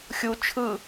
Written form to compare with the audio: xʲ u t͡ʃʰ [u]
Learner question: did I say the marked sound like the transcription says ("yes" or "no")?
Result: no